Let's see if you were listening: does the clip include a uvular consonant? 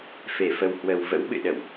no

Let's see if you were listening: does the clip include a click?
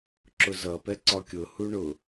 yes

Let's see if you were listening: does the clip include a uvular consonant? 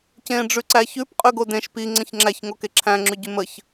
yes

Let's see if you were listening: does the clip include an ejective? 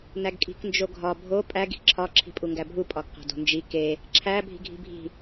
yes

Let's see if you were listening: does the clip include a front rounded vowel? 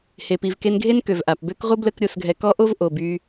yes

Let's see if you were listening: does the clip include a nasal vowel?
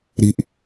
no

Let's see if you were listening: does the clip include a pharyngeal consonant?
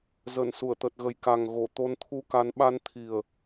no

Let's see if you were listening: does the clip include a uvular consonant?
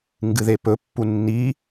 no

